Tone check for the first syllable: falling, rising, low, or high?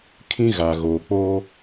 high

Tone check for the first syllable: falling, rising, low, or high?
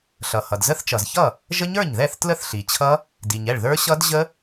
low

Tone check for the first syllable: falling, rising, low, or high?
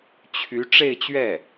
rising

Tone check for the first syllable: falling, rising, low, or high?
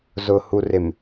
low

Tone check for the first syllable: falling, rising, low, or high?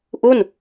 falling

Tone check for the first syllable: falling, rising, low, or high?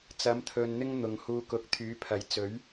rising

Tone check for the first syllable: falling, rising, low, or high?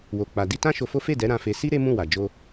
low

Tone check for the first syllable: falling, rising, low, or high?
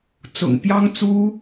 low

